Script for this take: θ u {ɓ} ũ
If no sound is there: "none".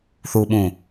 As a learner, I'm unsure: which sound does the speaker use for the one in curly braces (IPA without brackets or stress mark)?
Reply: ɓ